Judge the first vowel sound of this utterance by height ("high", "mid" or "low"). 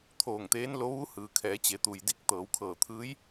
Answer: mid